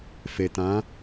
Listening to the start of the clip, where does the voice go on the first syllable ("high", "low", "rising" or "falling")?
low